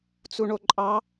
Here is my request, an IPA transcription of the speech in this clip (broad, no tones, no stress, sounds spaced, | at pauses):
t͡s u ɳ o ǃʼ ɑ